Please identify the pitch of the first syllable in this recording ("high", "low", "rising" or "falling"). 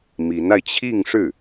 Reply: rising